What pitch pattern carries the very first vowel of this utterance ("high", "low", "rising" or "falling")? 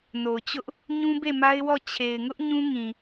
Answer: low